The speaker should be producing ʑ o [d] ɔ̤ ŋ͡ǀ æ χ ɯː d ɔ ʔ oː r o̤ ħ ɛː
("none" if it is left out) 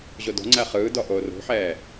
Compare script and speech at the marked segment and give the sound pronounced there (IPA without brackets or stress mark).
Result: d